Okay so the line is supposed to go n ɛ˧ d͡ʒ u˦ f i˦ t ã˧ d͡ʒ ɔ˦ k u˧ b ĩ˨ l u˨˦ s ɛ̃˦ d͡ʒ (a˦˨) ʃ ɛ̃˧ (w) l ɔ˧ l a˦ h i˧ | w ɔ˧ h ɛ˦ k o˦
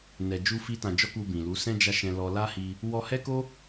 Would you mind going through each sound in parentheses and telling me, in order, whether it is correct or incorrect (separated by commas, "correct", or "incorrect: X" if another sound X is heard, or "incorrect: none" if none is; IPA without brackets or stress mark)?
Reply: correct, incorrect: none